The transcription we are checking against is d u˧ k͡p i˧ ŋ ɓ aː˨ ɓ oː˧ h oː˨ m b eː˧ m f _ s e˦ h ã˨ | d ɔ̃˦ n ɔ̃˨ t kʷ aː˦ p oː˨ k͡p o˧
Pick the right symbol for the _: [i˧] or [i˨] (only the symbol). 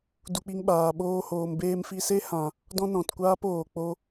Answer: i˧